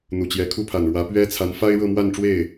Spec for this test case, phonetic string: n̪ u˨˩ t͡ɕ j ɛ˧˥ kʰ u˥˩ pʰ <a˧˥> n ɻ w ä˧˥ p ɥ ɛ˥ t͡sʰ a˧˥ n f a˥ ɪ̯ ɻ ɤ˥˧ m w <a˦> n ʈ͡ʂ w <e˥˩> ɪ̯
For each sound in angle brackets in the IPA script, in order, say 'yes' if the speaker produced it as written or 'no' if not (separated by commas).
no, no, yes